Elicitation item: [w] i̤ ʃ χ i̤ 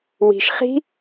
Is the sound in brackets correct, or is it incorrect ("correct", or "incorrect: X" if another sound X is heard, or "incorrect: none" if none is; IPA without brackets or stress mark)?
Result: correct